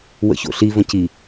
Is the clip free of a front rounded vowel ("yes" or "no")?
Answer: yes